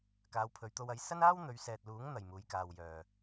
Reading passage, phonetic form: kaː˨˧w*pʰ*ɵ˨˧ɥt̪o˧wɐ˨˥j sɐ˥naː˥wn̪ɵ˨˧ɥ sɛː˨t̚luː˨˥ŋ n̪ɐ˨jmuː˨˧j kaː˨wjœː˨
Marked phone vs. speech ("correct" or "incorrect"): correct